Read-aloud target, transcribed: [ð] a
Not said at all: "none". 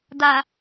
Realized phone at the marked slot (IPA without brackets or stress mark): d